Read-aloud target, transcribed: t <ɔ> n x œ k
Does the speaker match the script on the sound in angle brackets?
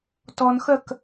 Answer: yes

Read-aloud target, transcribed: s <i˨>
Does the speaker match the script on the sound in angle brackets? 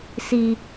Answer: yes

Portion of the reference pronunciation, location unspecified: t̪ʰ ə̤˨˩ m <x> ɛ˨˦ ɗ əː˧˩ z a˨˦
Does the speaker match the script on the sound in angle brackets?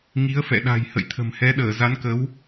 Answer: no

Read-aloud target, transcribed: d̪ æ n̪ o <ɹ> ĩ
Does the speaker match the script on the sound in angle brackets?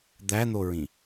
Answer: yes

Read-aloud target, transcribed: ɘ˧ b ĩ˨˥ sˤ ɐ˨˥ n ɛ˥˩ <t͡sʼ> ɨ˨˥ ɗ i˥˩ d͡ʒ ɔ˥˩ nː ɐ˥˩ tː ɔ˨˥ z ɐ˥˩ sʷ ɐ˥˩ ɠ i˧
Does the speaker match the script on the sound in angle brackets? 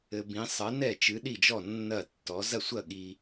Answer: no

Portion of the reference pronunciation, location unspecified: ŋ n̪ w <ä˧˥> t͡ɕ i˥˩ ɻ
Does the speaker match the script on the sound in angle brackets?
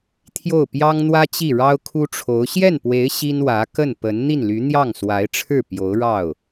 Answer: no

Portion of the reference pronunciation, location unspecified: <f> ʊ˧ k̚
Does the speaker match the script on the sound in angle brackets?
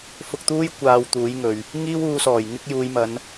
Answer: yes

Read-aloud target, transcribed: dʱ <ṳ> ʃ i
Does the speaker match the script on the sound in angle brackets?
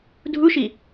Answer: no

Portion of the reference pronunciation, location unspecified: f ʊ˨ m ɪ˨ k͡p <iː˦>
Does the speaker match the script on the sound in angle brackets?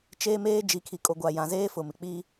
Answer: yes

